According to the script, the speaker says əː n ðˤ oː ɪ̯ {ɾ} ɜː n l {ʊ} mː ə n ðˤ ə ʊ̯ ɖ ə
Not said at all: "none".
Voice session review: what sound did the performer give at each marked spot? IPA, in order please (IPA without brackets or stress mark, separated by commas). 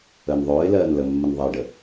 l, ə